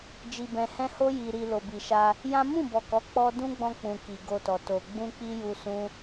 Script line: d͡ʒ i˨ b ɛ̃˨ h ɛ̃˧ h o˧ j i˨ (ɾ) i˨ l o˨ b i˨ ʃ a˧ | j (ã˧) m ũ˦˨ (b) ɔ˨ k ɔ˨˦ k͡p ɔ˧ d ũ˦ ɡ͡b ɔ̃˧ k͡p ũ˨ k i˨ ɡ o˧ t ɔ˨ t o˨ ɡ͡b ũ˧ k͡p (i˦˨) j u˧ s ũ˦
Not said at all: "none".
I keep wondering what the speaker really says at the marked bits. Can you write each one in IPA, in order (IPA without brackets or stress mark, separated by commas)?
ɾ, ã˦, b, i˧